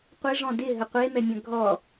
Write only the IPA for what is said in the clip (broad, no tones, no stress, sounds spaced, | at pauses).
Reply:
qʷ ɪ ʐ ɔ̃ d ɪ ɦ ə qʷ e m ɛ mʲ ɐ̃ ɡʱ ɔ